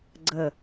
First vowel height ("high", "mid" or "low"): mid